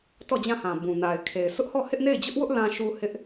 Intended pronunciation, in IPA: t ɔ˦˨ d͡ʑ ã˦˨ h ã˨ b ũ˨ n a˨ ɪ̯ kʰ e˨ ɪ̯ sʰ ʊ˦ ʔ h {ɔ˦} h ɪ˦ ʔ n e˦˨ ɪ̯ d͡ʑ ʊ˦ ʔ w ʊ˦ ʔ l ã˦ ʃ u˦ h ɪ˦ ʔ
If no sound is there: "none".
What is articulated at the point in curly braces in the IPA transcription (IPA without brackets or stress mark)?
ɔ˦˨